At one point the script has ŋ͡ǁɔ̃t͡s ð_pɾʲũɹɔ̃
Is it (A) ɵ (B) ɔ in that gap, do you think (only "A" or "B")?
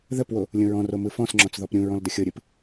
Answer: B